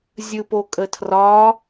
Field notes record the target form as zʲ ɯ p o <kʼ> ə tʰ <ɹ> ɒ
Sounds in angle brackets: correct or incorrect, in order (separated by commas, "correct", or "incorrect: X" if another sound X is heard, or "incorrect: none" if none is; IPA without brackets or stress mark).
correct, incorrect: r